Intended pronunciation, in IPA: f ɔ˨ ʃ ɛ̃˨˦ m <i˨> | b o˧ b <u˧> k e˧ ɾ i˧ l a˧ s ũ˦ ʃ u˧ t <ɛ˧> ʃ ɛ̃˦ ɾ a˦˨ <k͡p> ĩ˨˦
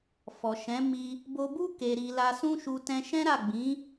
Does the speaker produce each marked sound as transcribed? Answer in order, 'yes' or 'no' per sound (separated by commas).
no, no, no, no